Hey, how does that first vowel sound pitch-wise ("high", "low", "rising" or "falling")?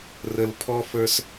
low